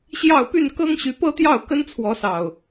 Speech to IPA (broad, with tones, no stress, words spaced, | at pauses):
ɕjɑ˥˨ʊ̯ py˥˨n kɤ˦ŋɕy˨˦pɤ˦t̪jɑ˥˨ʊ̯ kə˦nt͡sʰwɔ˨˦sɑ˨˩ʊ̯